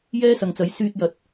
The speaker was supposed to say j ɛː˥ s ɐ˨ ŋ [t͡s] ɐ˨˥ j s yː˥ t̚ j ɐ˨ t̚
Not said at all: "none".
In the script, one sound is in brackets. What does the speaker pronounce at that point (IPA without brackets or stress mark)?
t͡s